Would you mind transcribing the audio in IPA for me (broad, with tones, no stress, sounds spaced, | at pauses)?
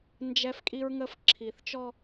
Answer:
n d͡ʒ ɛ˦ f kʼ i˦ ɹ ŋ ə˦ f ǁʰ i˨ θ t͡ʃ ɔ˦